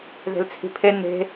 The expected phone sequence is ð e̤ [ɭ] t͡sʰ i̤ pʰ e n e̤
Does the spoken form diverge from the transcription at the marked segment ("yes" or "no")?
yes